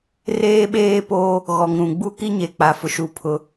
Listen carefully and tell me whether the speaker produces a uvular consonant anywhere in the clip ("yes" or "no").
no